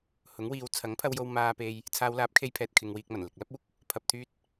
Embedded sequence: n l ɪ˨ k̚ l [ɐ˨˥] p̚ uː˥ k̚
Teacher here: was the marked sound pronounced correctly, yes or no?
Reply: no